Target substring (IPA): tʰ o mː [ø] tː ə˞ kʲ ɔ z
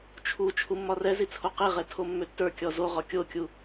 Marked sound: correct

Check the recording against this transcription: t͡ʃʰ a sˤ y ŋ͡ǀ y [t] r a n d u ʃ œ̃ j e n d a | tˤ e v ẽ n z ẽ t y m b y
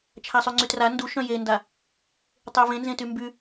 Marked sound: correct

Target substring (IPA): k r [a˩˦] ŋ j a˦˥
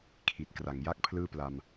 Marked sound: correct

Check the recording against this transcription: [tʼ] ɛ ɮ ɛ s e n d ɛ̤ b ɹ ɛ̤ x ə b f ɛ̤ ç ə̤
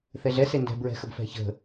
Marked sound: incorrect: θ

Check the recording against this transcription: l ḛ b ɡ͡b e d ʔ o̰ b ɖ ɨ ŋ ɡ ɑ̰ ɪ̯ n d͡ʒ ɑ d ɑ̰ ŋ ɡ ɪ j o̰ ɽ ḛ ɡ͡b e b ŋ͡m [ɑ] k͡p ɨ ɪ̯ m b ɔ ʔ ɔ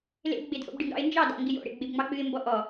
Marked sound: correct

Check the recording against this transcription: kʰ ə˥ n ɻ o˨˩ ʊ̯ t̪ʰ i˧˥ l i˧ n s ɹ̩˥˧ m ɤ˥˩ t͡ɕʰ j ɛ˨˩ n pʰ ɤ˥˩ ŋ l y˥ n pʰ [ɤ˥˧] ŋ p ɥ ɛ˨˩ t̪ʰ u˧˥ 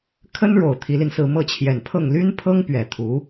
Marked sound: incorrect: ɤ˥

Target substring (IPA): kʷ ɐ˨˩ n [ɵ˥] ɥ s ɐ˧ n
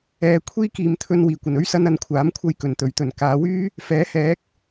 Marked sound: correct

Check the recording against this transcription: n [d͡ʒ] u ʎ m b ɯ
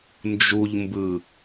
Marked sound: correct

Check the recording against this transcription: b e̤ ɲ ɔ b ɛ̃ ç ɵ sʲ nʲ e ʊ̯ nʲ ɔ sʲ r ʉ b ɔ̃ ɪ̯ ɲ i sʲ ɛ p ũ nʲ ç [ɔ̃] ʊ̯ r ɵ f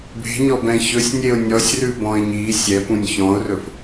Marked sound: correct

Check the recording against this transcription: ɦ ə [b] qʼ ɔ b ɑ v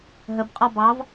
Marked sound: correct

